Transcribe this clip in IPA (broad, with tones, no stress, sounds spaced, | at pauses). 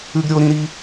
ʉ˦ ɡ ɾʲ o˦ ɾ ĩ˦ ɾ i˦